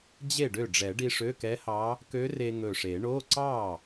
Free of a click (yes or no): no